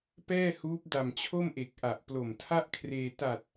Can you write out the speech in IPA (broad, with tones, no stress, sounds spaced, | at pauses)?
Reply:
p ɛː˥˩ h uː˦˥ p̚ d a˨˩ m t͡ɕʰ o˥˩ m ʔ e˨˩ k̚ ʔ a˨˩ ʔ p l o˨˩ m tʰ a˥˩ ʔ kʰ r eː˧ t a˨˩ t̚